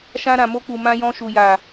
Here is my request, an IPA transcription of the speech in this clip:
ʃã˧ɾã˨ mo˧k͡pu˨ mã˧jɔ̃˧ʃu˨ ja˨

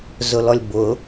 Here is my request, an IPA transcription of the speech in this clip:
zʊlɔlʲbʊ

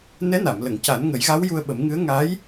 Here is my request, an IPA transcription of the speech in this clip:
nɛ˧˥na˨˩˨mlə˨˩˨ŋ ca˨˩˦nŋə˨˩˦jɣa˧˥w ju˧ə̯ɓə˨˩˦mŋɨ˧˥ə̯ ŋa˧˥j

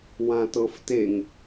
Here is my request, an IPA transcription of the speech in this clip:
wãtɤfteŋ

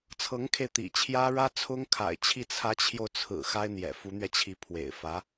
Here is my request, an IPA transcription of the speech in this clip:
t͡sʰɤ˧˥ŋkʰe˧ɪ̯t̪ḭ˨˩t͡ɕʰjä˥ ɻä˥t͡sʰʊ˥ŋkʰa̰˨˩ɪ̯t͡ɕʰi˥˩ t͡sʰä˧˥t͡ɕʰjo˧ʊ̯t͡sʰɹ̩˨˩ xa˥ɪ̯n̪jɛ̰˨˩ fu˧˥n̪ɥɛ˧t͡ɕʰi˧˥ pʰwḛ˨˩ɪ̯fä˧˥

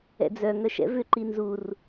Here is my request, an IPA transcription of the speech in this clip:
ɛ̰d͡zœ ŋœʃɛ̰vʏ ǃinzur

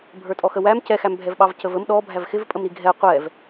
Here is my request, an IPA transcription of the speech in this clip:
bʱə˞tʼɔxəwæm cɛxæmbʱɛv ɓɑvcəvəm ɗɔ bʱævxɪvpʼəm ɾiɡʱɛ qʷɛv

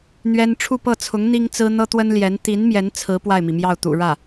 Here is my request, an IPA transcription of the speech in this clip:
n̪ɥɛ˥n ʈ͡ʂʰu˥˧pɤ˥˩t͡sʰʊ˧˥ŋ n̪i˥ŋt͡sɹ̩˥ n̪ɤ˥t̪wə˥nljɛ˧˥n t̪i˧˥n mjɛ˧˥nt͡sʰɹ̩˧˥ pwa˥˩ɪ̯mi˩mjɑ˥˩ʊ̯t̪ṵ˨˩ ɻä˥˩

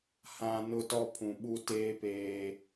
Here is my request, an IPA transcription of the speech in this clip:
hã˨ nʊ˦tɔ˦pʰũ˨ ɓu˦teː˦ peː˦

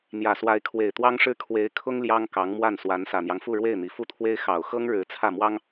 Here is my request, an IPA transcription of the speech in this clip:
n̪jä˨˩swa˧˥ɪ̯ kʰwe˨˩ɪ̯t̪wɑ˥ŋʂɻ̩˥ kʰwe˧˥ɪ̯kʰʊ˥ŋ ljɑ˥ŋkɑ˧˥ŋmwa˥˩n swa˧˥nsä˨˩n̪jɑ˦ŋfu˥˧ ɻwe˥˩ɪ̯n̪i˨˩ fu˥˩t̪ʰwe˥ɪ̯ xɑ˨˩ʊ̯xɤ˥ŋɻɻ̩˧˥ t͡sʰä˥˩mwɑ˥ŋ

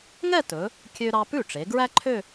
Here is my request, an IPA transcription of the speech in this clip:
ŋɛ˥˧tɵ˩˧ | kʲø˥ɾɑ˥ pʉ˥˩ʈ͡ʂe˩˧ ɡɹæ˥ǃʰø˥˧

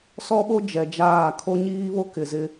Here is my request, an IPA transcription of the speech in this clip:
sɔ˦ɓo˦ d͡ʒɛ˨d͡ʒaː˦˨ kʰo˦ɲiː˦βo˦ kɪ˨zɪ˦

